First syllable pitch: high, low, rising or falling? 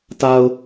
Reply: low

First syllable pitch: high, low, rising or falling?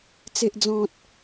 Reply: low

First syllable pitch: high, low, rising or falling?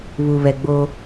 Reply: low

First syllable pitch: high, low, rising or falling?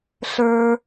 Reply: high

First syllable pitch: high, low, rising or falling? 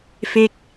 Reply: falling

